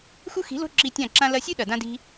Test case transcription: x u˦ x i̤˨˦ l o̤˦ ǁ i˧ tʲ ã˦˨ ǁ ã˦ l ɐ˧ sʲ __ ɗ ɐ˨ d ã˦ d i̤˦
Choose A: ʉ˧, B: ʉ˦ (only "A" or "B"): B